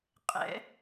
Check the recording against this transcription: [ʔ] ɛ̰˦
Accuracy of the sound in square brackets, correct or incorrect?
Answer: incorrect